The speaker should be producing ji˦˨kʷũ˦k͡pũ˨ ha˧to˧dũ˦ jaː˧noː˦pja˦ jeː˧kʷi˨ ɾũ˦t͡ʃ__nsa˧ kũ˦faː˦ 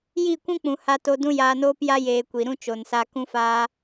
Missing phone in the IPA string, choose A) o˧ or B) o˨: B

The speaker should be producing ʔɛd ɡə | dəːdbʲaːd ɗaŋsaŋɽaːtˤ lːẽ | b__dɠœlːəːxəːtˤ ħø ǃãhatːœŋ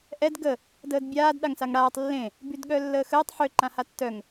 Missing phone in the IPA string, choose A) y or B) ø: A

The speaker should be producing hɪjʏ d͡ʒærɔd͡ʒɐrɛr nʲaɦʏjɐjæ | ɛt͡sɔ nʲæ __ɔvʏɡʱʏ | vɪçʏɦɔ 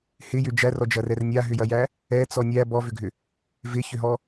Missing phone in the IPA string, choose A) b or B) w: A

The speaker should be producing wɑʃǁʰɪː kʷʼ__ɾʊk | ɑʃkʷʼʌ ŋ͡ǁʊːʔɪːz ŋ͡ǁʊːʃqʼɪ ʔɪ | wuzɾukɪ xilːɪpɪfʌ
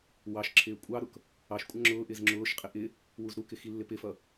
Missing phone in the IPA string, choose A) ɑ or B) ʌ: A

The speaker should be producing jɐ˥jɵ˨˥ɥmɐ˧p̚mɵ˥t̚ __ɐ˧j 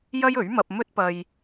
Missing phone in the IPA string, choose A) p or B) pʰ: A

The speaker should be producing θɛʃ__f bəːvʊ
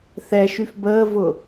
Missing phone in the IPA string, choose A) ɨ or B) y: B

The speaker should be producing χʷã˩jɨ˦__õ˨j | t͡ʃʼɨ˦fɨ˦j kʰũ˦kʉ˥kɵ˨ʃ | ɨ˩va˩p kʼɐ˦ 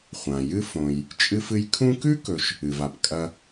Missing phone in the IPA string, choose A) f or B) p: A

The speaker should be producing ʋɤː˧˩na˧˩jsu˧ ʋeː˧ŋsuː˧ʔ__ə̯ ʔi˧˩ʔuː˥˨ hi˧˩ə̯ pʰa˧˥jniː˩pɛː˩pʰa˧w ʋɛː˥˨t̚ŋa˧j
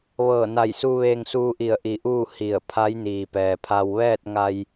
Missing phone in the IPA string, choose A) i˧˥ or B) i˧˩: B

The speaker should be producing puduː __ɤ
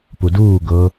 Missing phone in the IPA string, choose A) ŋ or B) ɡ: B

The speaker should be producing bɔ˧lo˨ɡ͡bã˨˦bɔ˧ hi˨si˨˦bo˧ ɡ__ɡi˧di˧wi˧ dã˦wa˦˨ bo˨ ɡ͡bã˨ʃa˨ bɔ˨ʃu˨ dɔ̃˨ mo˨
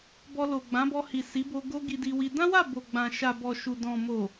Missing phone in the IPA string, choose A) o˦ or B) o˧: A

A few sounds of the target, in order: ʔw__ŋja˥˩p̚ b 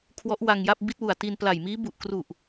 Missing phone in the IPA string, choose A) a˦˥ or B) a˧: B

